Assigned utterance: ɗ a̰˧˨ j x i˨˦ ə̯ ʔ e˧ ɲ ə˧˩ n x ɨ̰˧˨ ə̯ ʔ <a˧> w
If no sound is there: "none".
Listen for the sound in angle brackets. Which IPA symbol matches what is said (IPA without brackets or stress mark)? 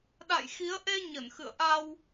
a˧